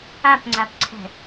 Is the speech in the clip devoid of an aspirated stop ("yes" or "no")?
no